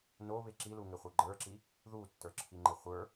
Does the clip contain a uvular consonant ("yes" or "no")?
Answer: yes